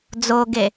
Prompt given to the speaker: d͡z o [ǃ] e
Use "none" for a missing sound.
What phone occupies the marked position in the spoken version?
ɡ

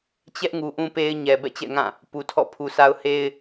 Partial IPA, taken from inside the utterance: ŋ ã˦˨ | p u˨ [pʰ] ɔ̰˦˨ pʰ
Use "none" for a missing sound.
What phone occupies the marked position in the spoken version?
tʰ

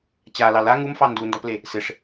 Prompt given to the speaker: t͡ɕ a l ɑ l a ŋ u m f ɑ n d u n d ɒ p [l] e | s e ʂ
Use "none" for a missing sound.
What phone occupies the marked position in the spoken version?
l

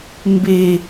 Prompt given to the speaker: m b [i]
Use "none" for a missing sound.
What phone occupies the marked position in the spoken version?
e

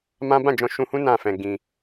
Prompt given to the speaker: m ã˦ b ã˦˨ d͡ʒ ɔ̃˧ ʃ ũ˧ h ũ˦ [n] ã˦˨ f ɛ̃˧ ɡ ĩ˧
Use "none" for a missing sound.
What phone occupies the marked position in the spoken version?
n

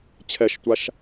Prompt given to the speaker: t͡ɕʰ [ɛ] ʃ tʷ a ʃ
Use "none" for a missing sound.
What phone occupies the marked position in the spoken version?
ɛ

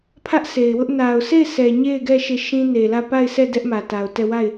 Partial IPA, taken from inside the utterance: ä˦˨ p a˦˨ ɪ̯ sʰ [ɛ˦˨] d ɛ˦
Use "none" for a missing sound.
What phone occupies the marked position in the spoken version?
ɛ˦˨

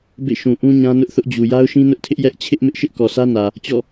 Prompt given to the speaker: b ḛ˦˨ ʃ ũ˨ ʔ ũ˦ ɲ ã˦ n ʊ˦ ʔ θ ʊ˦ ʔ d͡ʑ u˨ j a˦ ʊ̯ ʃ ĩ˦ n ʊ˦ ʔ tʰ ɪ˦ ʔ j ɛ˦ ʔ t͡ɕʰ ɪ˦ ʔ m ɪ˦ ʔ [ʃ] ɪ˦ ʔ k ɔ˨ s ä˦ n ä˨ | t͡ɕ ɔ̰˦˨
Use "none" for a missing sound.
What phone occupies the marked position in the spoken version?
ʃ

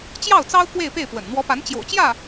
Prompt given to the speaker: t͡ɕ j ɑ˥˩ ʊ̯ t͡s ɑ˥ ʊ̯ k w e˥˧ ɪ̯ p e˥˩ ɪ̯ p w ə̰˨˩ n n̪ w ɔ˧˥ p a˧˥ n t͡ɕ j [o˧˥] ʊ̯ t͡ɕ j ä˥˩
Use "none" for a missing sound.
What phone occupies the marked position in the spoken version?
o̰˨˩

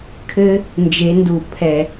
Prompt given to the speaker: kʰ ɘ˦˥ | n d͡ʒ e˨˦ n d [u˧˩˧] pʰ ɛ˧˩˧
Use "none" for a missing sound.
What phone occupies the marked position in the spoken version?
u˧˩˧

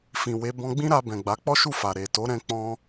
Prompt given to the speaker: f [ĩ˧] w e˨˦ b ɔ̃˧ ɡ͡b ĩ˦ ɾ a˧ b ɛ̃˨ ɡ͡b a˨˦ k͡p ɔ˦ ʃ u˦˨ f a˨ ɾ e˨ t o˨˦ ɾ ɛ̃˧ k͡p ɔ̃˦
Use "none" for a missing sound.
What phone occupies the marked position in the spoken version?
ĩ˨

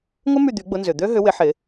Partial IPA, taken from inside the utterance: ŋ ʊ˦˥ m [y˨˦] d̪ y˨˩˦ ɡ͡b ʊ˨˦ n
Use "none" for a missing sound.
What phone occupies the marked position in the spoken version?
y˦˨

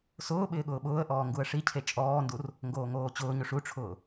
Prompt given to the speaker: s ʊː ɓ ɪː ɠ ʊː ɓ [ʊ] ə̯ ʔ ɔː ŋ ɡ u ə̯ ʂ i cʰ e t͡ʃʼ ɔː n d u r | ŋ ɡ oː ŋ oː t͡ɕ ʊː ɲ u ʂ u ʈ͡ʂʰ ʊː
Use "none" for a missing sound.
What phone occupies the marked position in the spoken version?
ʊː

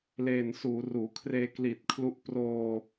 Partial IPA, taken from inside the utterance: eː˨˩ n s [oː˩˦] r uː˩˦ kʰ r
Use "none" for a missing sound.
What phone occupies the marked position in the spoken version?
uː˩˦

